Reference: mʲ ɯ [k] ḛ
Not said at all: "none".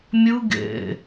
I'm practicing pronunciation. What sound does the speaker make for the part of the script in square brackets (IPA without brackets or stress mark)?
ɡ